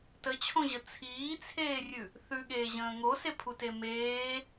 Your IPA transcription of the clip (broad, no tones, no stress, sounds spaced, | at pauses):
t ə t͡ɕʰ õ ʑ ə t͡sʰ iː t͡sʰ eː rʲ ʉ | θ ʉ ɠ eː ʑ ə̃ː ŋ o s e pʰ u t e m eː